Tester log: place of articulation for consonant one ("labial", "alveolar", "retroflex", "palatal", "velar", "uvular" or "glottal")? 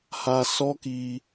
glottal